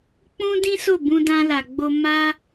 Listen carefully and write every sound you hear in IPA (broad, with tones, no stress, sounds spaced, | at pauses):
k͡p ũ˦ d ĩ˦ s o˦˨ b ũ˧ d ã˧ l a˨ ɡ͡b o˧ m a˦